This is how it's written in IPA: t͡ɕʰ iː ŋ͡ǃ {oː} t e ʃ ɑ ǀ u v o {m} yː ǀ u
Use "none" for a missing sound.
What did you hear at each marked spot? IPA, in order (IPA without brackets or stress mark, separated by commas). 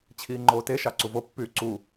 oː, pː